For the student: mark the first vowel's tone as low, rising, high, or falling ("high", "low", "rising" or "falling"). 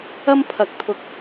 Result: high